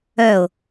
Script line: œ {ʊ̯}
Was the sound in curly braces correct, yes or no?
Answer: yes